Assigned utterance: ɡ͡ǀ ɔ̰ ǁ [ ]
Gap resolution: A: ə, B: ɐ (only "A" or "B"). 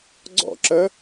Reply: A